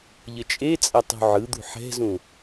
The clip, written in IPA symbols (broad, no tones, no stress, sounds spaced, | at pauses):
ʎ ə t͡ʃʼ e t͡sʼ ɐ tˤ ṳ ʕ ɯ d̪ ṳ ħ ɛ̤ z ũ